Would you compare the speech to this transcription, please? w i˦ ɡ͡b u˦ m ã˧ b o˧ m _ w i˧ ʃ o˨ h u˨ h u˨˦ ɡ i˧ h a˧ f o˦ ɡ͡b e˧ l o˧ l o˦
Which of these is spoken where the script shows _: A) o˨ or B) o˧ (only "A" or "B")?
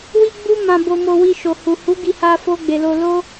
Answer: B